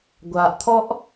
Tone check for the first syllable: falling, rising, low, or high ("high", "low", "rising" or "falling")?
low